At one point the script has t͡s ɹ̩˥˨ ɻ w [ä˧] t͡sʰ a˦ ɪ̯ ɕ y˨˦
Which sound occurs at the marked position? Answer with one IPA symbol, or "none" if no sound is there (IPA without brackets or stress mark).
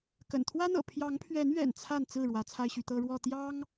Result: ä˨˦